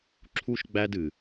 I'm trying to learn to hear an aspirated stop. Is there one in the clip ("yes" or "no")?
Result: yes